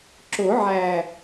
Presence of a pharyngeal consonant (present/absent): present